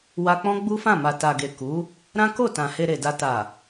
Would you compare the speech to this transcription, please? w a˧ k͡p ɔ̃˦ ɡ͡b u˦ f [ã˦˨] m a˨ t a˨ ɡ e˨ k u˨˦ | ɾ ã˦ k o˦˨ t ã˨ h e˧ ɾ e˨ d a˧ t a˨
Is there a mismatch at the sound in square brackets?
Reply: no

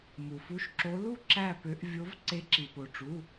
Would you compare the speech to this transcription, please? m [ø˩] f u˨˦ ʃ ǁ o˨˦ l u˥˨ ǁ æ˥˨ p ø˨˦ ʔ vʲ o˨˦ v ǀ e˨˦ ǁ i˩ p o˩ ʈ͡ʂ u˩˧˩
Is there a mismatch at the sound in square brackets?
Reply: yes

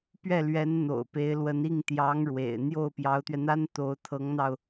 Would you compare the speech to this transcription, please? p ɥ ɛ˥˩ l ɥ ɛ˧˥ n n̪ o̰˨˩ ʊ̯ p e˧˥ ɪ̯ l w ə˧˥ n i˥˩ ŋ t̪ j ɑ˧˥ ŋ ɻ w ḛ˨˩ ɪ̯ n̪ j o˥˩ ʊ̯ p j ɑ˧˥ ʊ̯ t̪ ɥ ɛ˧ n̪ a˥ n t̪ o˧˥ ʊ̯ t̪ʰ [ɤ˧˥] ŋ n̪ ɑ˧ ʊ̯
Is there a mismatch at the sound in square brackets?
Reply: no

